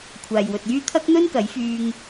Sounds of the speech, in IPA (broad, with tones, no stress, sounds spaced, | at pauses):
kʷʰ aː˨ j w ɵ˨ t̚ j yː˥ t̪ʰ ɐ˥ k̚ n̪ ɵ˥ n k ɐ˨˥ j f yː˧ ŋ